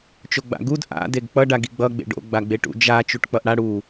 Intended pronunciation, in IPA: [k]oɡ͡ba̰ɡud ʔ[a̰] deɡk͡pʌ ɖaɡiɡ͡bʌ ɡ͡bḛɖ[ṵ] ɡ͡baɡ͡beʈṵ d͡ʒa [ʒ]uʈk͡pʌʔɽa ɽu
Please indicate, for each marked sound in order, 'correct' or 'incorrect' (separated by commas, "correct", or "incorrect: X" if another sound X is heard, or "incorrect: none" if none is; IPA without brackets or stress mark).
incorrect: t͡ʃ, correct, incorrect: o̰, incorrect: t͡ʃ